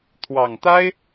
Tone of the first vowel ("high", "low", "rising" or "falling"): low